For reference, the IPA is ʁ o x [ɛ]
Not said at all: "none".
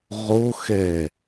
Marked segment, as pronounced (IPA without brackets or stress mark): ɛ